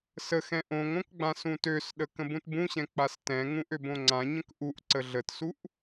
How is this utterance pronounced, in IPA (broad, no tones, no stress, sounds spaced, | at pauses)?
s ə x ɛ̃ ʔ õ ŋ õ k ɡ͡b ã s ũ t ø s ɗ ə k ə̃ b ũ t b ũ ɕ ɛ̃ k͡p a s t ɛ̃ ŋ ũ ʔ ø b õ ŋ͡ǀ ã ɲ ə̃ k ʔ u ʔ ǀ ə ɮ ə t s u ʔ